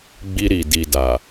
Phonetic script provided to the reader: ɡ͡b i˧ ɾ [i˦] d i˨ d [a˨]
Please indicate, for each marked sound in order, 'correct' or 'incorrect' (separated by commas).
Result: incorrect, correct